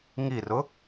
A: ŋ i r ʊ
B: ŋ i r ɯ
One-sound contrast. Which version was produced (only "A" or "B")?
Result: A